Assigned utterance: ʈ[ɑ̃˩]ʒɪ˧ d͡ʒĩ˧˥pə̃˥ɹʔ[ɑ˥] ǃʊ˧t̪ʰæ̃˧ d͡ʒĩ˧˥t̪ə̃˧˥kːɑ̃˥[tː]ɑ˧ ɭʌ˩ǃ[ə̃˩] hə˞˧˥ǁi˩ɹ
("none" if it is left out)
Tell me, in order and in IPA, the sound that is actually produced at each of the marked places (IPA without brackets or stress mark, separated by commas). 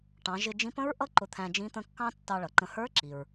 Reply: ɑ̃˩˧, ʌ˥, tː, ə̃˧